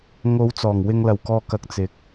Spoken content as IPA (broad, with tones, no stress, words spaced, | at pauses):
ŋo˨˧wt͡sɔː˨˩ŋ wɪ˨ŋlɐ˨˩wkɔː˨ kɐ˨˥k̚ t͡sɪ˨k̚